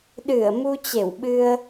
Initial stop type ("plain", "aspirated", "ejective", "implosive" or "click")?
implosive